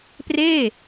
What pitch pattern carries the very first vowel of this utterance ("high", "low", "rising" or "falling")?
falling